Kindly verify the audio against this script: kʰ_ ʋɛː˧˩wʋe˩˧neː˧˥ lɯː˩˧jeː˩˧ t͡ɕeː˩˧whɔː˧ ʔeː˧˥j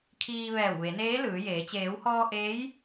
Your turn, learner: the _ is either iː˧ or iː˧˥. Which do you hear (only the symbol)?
iː˧